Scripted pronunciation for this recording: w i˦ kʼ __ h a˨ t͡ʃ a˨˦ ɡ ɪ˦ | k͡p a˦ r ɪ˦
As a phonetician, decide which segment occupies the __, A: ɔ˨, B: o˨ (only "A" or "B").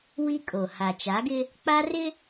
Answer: B